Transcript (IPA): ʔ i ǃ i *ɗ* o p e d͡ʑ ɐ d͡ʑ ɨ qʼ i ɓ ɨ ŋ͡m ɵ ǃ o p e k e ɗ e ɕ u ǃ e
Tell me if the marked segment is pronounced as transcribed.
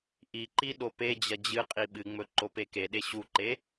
yes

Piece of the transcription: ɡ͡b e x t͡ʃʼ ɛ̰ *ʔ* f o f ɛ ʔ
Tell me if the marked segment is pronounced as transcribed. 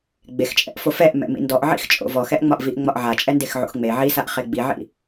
yes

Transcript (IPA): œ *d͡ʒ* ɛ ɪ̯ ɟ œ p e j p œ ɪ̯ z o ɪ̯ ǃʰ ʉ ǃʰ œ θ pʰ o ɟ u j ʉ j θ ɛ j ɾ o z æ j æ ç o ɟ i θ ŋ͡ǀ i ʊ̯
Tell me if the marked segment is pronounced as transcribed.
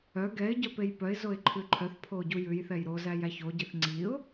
no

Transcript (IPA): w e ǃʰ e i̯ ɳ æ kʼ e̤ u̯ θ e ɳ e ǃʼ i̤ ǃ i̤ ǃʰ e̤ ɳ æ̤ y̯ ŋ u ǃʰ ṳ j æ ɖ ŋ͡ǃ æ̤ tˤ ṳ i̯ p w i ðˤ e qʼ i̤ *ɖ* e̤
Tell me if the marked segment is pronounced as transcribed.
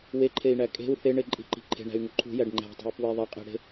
no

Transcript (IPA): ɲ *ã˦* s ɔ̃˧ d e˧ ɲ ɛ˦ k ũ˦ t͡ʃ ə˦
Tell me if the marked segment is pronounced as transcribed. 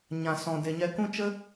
no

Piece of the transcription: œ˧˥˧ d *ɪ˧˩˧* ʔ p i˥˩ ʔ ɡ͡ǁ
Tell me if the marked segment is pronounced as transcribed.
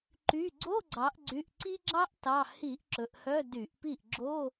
no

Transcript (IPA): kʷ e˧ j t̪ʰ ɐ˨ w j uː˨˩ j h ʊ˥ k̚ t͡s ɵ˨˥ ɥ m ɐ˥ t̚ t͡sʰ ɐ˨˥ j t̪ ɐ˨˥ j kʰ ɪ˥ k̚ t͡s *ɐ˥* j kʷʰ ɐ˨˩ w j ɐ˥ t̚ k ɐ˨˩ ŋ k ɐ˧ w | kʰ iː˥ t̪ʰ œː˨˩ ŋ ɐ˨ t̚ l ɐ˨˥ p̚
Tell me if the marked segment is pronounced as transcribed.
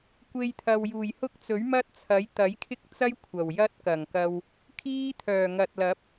yes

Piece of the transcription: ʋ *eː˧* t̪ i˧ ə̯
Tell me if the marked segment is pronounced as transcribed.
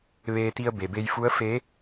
yes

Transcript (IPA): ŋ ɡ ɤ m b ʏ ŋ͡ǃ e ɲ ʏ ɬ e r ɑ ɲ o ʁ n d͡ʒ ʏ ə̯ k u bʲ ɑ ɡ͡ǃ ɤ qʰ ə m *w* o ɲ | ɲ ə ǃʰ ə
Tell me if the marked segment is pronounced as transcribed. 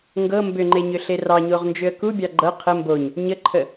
no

